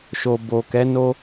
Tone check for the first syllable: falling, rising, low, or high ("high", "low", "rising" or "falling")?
low